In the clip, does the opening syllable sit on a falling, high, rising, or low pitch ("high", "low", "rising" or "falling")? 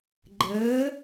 rising